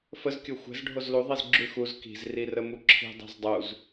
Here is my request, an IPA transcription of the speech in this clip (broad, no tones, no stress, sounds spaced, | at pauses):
f ə z kʲ o xʷ ɛ̤ z ɖʱ o z l u ðˤ i z ɡ͡ǁ ʉ x u z k i̤ z r i r ə m u ǁʰ i̤ dˤ ɛ̤ z dˤ u z